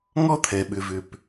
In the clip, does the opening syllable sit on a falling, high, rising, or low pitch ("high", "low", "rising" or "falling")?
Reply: high